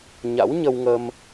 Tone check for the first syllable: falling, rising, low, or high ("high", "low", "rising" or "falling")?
rising